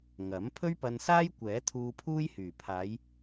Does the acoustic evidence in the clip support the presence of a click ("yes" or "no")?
no